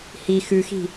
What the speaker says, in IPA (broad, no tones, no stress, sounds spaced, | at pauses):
h i x ʉ x i̤